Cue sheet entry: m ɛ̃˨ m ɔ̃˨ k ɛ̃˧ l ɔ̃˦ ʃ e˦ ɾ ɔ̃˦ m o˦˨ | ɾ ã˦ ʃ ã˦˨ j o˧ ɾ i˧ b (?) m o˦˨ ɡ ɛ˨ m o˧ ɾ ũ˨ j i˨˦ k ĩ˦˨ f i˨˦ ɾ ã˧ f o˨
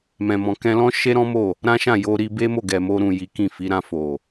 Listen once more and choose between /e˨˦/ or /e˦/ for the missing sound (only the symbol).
e˦